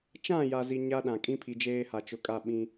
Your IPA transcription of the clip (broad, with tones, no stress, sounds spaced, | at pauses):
t͡ʃ ã˦˨ j a˨ z i˨ ɲ a˦ ɗ ã˨ kʼ ĩ˦ pʰ i˨ d͡ʒ eː˦ h a˨ t͡ʃ ʊ˨˦ kʼ a˦˨ ɓ ĩ˦